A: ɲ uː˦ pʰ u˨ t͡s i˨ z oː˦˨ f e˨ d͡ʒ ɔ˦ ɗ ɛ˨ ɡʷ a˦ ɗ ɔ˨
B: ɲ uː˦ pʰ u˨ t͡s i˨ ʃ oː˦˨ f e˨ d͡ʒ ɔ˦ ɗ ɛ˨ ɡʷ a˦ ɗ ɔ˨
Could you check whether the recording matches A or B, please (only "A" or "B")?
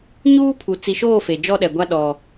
B